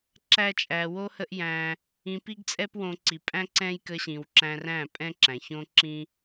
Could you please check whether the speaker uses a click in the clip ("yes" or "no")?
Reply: yes